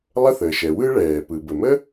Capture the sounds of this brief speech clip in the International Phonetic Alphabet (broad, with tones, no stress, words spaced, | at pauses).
lˠə˥θəː˩ʃɛ˩ wɯ˥ɭɛː˩ pɯ˩bə˩mə˥